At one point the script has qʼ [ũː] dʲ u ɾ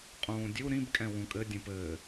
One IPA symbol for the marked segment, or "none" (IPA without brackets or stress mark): ũː